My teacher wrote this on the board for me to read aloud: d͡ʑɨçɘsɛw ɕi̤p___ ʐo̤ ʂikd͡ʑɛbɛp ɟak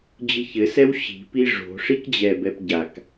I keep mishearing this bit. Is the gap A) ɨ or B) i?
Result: B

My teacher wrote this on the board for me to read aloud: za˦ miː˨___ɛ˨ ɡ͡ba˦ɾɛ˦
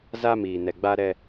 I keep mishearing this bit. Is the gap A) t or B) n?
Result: B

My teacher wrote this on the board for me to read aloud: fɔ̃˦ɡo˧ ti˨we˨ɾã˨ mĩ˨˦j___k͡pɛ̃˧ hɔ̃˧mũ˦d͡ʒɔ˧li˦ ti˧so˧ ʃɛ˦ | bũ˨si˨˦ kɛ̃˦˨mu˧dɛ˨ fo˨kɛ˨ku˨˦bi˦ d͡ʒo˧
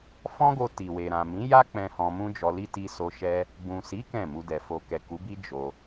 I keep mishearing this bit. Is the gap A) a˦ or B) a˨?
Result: A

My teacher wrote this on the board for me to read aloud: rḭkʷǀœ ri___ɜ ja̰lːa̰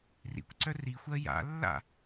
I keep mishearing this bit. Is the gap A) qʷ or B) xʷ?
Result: B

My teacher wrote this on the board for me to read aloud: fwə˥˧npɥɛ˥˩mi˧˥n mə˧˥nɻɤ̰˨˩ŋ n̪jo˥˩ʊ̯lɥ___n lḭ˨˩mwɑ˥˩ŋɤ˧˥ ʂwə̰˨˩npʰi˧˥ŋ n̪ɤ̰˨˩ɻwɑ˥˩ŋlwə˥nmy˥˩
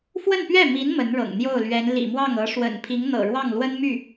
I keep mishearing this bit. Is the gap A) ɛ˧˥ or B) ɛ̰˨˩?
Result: A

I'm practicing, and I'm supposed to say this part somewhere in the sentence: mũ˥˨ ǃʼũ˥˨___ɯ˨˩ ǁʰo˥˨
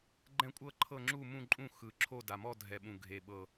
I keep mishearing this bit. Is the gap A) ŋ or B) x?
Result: B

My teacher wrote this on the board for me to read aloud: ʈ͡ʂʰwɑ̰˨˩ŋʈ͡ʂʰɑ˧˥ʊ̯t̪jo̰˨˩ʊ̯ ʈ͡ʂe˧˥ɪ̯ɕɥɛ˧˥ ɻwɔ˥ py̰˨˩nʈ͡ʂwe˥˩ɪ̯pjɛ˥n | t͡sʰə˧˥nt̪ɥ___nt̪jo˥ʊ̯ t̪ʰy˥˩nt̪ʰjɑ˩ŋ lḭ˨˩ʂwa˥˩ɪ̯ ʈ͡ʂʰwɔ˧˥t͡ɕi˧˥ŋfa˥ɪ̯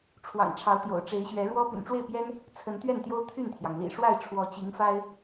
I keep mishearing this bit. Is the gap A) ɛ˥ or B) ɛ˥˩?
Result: B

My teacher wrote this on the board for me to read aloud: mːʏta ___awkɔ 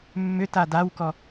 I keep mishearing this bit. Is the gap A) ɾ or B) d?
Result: B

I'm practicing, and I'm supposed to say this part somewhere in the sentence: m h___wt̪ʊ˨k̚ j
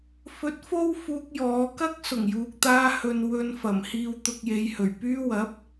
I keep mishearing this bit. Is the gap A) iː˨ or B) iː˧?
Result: A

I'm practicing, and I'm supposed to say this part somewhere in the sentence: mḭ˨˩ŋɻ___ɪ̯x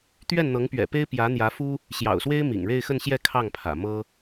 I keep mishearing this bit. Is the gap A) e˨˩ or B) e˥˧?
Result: B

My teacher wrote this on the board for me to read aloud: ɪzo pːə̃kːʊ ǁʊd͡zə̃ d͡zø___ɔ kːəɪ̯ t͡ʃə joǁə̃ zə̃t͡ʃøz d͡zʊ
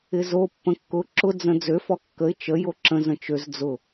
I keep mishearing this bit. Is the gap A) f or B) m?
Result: A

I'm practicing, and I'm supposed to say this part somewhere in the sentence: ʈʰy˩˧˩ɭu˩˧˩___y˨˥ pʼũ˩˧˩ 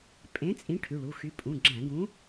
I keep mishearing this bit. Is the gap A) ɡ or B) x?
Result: B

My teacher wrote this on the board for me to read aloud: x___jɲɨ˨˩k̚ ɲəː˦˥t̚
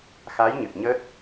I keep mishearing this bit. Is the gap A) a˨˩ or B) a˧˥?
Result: B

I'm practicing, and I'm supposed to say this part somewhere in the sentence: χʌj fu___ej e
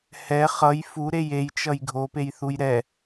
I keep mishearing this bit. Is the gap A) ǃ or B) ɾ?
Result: B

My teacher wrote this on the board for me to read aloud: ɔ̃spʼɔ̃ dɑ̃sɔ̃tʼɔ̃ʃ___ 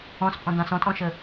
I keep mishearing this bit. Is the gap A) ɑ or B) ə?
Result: B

